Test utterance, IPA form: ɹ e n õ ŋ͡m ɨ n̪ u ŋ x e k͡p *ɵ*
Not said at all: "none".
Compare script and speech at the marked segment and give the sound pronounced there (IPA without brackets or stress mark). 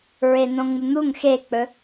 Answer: ɵ